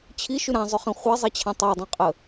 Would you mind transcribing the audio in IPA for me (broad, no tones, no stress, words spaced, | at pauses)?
t͡ɕʰiʃy ɾãzˤʊχĩ χʷɛzˤet͡ɕʰã tˤadˤẽqʼə